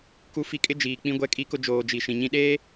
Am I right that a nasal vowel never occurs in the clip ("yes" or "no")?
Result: no